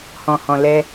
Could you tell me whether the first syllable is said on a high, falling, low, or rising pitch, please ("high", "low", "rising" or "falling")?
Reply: low